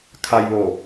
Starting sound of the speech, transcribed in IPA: kʰ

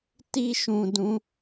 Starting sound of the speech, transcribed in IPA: t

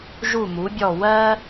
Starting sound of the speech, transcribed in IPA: ʒ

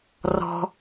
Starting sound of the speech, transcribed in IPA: r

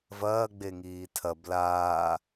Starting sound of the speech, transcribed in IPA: v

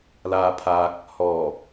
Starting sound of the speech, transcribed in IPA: l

